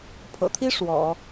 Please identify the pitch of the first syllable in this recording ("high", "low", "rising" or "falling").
low